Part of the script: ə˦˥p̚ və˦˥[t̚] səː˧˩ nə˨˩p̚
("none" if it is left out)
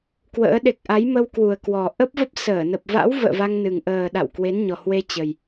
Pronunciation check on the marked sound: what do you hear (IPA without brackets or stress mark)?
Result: p̚